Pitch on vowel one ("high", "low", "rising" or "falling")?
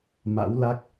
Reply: rising